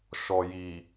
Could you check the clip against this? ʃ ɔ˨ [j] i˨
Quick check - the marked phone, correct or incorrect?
correct